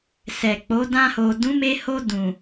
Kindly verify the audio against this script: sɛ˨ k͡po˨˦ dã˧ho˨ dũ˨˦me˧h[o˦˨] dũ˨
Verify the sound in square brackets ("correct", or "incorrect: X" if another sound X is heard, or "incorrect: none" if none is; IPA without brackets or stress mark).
incorrect: o˧